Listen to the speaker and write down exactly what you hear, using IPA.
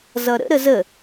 z ʌ ɾ ə̰ ɾ ə z ə

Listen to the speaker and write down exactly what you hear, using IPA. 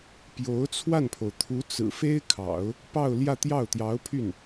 p j o˧˥ ʊ̯ t͡sʰ w a˥˩ n pʰ o˩ ʊ̯ t̪ʰ u˧˥ t͡s ɹ̩˨˩ f e˥ ɪ̯ kʰ ɑ̰˨˩˦ ʊ̯ | p ɑ˥˧ ʊ̯ l j ä˥˧ t̪ j ɑ˥˩ ʊ̯ t̪ j ɑ˧˥ ʊ̯ pʰ y˥˩ n

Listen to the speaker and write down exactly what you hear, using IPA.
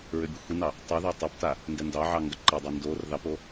ɹ ʏ bʲ ə xʷ i n ɑ | tˤ u ð ɛ tˤ o p t a | n d ɛ n d ɑ ʕ ɑ ŋ ɡ ɐ ǃ ɐ dˤ a n d o r ð ɑ p o

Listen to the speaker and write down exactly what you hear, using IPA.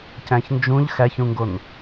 c æ̃ ç n d͡ʒ ũ ʎ x æ ç ũ ŋ ɡ o n

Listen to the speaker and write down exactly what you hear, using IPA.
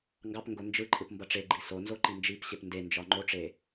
ŋ ɡ ɑ p ŋ ɡ o n d͡ʒ ɯ ǃʼ ɯ p m b ʌ ʈ͡ʂ e ɡ͡ǃ i s o n z o ǃ i n d͡ʒ i p ɕ e p n d e n d͡ʒ ɒ ŋ͡ǃ o ʈ͡ʂ e

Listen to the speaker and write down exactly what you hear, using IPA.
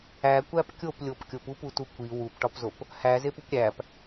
æ kʷ æ p kʲ o p lʲ o p kʲ o p u p u t u kʷ i w u p ʈ ɒ p z o p | h æ z e p u p ɾʲ æ p

